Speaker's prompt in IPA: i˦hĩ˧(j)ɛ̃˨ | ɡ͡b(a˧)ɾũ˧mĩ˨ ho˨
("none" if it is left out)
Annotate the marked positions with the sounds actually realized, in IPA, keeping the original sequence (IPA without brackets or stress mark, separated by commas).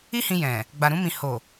j, a˨